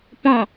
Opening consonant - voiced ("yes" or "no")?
no